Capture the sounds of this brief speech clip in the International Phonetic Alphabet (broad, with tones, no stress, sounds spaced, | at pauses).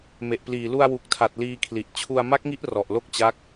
m e˨˩ ʔ p l iː˨˩ l u˧ a̯ w u˨˩ k̚ tʰ a˨˩ t̚ l iː˧ kʰ l i˨˩ ʔ t͡ɕʰ u˧ a̯ m a˦˥ k̚ ŋ i˦˥ ʔ r ɔ˨˩ ʔ l o˥˩ k̚ t͡ɕ a˦˥ k̚